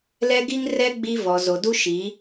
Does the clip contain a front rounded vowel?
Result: no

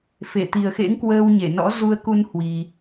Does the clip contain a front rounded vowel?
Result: no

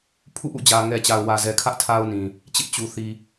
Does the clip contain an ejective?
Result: no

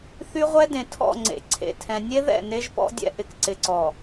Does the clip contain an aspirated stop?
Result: yes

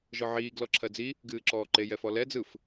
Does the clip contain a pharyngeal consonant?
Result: yes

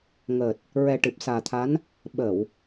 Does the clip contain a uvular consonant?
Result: no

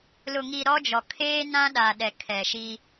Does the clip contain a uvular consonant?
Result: no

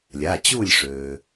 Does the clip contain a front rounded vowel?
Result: yes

